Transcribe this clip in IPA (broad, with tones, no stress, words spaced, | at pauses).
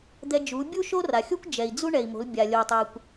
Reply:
d̪ɛ˧d͡ʒu˩˧bʲu˥ ʃo˥ra˩xʲo˥kʷ d͡ʒɛ˩i̯d͡zu˥ ɳɛ˩i̯mo̤˩˧l bʲa˩lʲo˩tˤɛ˩kʷ